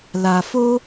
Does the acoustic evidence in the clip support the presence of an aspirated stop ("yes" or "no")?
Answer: no